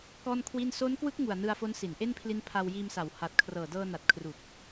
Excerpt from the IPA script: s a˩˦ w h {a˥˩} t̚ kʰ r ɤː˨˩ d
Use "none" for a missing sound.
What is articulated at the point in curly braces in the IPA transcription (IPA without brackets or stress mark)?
a˨˩